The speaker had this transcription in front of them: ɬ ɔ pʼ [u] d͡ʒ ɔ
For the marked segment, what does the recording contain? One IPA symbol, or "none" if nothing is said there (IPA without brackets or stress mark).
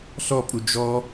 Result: u